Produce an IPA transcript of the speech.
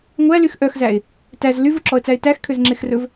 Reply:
ŋʷ æ l y x ʔ œ x z æ ɪ̯ | t æ z l y v u ǁ ɔ ə̯ t͡s æ ɪ̯ t æ x kʰ ø z ŋ͡ǁ e x r ɵ v

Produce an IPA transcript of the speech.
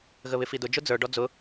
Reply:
ɣ ə β ɪ f i d ʊ d͡ʒ ʊ d͡z ə˞ ɖ ɔ d͡z ʊ

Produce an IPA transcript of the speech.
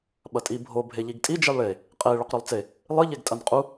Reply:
ɓ ɐ tʼ i bʱ o bʱ e ʎ i ɡ tʼ i d͡ʒ i lˠ ɭ e | qʼ e ɭ ɵ q ɾ ʉ lˠ t͡s e | lˠ ɨ ʎ e ɡ tʼ ɐ n qʼ u

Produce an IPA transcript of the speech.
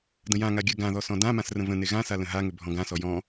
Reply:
d ə̃ j ã ŋ a ɡʲ ɜ ɡ ã ð ɔ s ɔ̃ d ã m ã s r ə̃ v ə̃ n e ɣ ã s a l ə̃ ɦ a ŋ ʏ bʱ ɔ̃ ɡ ã s ɔ j ɔ̃

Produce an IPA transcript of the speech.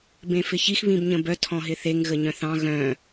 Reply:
b ẽ f ɪ ç i x β ĩ b ɲ ə̃ b œ tʰ ɔ̃ ɦ ɪ θ e ŋ ɣ ə ɲ œ̃ θ ɑ̃ ɣ œ̃

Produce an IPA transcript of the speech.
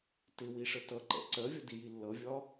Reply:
t ɪ w i ʂ ə t ʌ ǃ ɛ̰ ǀ ɜ vʲ ʌ d i j i lː ʌ vʲ ɒ

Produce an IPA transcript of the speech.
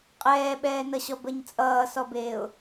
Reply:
qʼ ɛː ɓ ɛː n ʌ ɕ ɔ b ə ɲ t͡sʼ ʌː s ɔ b eː ʊ̯

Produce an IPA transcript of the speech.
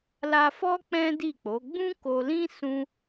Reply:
l a˧ f ɔ˦ k͡p ɛ̃˦ d i˦˨ k͡p o˨˦ ɡ͡b ũ˦ k o˧ l ĩ˦ s ũ˦

